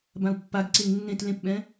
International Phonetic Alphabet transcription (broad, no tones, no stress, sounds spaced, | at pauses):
b ã u̯ pː a ɡ ǀ e ŋ nː ẽ t l ẽ p ɓ ɛ̃